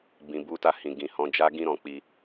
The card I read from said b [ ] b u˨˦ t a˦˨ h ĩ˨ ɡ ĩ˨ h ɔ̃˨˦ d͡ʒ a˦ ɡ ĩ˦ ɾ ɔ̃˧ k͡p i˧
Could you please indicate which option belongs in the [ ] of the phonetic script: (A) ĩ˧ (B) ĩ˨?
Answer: B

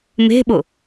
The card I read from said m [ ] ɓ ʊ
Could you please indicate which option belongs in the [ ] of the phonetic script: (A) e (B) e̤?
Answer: B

